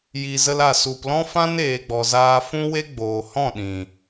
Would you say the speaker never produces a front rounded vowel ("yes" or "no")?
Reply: yes